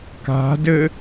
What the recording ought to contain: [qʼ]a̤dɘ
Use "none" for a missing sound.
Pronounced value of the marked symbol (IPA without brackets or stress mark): k